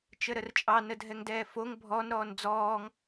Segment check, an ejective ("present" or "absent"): present